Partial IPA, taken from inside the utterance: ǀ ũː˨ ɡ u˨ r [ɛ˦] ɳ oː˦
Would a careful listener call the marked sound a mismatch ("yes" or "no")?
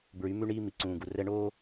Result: no